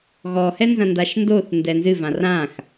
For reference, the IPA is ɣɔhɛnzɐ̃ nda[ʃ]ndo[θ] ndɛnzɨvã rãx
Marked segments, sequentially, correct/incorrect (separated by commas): correct, correct